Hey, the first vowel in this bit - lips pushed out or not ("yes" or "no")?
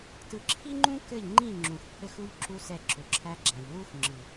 no